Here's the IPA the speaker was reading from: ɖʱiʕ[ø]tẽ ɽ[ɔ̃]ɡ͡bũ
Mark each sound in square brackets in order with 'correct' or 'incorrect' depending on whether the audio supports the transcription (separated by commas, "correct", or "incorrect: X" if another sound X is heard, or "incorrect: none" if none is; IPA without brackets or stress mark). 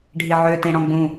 correct, correct